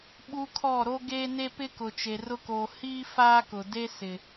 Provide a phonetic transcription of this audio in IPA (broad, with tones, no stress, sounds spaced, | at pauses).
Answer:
ɓ u˦ kʰ ɔ˦˨ ɾ o˦ ɡ eː˦ n e˦ p ɪ˦ k ʊ˨ t͡ʃ e˨ r ʊ˦ k oː˨ h iː˦ f aː˦ k ʊ˨ d e˦ s ɪ˨